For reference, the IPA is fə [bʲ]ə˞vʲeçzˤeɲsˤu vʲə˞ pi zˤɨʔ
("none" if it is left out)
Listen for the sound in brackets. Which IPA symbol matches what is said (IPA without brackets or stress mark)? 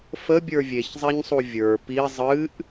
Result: bʲ